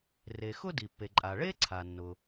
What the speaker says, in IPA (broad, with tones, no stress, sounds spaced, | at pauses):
r e˩ x ʊ˥ d i˩ pː e˩ ǃʼ a˩ ɭ e˥ ǀʰ a˩ nː ʊ˩